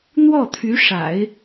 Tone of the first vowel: falling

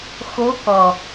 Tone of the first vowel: rising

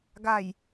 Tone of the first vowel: low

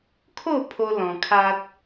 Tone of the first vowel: falling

